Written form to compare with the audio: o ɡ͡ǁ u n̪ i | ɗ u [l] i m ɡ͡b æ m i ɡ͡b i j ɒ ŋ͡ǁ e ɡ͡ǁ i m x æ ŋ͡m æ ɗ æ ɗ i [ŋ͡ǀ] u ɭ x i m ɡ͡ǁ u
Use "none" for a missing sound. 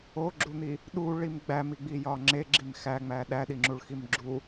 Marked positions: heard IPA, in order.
ɭ, ŋ͡ǁ

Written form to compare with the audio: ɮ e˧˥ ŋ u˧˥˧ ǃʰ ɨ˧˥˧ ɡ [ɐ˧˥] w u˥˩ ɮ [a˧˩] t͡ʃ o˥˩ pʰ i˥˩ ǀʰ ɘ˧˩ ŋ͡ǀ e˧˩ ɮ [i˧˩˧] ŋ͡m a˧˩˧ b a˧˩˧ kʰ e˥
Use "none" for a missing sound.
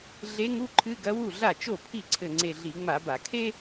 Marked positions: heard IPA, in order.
ɐ˧˥, a˥˩, i˧˩˧

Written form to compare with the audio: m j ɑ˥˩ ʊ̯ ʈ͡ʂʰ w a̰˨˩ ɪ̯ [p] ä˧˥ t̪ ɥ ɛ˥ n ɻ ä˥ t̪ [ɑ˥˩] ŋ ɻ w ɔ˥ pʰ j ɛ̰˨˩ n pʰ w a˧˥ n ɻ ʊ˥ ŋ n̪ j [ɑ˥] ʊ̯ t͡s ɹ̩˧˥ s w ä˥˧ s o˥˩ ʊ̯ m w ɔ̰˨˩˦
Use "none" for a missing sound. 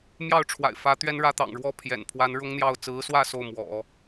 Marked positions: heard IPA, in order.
f, ɑ̰˨˩, ɑ˥˩

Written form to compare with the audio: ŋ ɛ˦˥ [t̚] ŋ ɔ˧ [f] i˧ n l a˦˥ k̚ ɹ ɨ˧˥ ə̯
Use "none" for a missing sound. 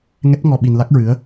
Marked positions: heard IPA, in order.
t̚, ɓ

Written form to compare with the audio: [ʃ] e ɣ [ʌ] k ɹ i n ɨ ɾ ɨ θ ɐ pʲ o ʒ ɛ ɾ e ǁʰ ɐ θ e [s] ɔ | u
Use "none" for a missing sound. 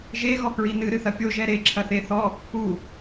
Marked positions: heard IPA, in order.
ʒ, ɔ, θ

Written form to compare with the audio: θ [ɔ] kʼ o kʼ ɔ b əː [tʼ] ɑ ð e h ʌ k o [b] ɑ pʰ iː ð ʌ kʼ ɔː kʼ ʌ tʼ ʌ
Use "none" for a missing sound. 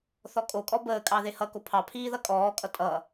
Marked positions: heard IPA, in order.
ɔ, kʼ, pʰ

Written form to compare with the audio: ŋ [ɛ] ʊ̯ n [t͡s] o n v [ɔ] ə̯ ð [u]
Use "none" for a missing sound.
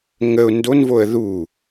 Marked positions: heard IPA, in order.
ə, d, o, u

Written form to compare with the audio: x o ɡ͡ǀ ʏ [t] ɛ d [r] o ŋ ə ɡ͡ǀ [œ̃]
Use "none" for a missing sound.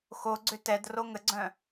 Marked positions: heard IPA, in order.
t, r, œ̃

